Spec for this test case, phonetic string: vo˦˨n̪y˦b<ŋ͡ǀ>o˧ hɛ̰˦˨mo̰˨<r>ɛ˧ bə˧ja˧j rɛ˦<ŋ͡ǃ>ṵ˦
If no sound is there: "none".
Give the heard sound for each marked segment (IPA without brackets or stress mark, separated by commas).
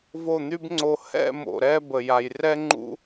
ŋ͡ǀ, ɾ, ŋ͡ǃ